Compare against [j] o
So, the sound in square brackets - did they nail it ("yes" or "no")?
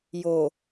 yes